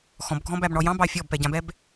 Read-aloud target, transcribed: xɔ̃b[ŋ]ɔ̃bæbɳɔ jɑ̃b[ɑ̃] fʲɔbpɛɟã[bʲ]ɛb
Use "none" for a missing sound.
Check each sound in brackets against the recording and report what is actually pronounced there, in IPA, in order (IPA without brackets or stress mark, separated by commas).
ɡʱ, ɑ, b